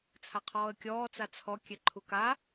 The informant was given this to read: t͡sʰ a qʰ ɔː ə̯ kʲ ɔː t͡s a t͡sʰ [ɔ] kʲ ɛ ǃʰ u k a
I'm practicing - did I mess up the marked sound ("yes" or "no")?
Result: no